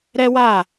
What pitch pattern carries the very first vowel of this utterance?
high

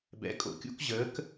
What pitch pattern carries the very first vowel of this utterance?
rising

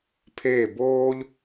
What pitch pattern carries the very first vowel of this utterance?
falling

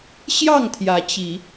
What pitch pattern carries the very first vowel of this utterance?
falling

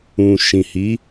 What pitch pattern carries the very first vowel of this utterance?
low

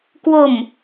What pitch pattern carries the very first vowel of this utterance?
low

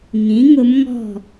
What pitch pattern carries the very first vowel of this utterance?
rising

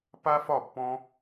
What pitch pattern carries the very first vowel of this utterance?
high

